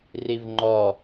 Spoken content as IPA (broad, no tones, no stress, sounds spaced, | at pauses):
r i v ŋ͡ǃ ɔ